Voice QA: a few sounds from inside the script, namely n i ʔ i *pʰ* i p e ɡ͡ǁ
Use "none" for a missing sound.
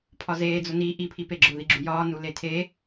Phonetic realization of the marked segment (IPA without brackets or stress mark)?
pʰ